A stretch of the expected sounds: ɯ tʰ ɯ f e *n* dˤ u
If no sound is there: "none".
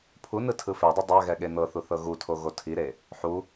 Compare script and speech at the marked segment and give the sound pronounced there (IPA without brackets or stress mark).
none